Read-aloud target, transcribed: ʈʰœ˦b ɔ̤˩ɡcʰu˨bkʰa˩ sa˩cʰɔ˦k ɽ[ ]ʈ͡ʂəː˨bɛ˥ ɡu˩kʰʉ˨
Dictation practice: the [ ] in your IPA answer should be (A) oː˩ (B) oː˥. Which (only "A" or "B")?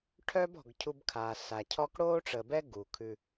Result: B